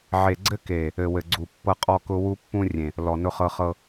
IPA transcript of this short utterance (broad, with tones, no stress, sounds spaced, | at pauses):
ʕ e˨ ɡ͡ǀ ɘ˦ k e˨ | ɘ˨ w ɘ˨ ɡ͡ǀ u˨ pː ɤ˦ qʼ ɔ˦ k ʊ˦ w u˦ pː ũ˦ rʲ ẽ˨ | l ɔ˨ n ʊ˦ χ ɤ˦ χ ɤ˦